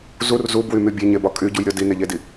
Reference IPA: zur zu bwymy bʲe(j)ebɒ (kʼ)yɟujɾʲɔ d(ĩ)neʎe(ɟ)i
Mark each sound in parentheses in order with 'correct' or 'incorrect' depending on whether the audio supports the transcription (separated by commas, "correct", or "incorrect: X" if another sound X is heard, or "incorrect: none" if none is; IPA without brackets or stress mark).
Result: incorrect: ɲ, correct, incorrect: i, incorrect: d